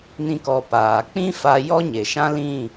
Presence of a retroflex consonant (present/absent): absent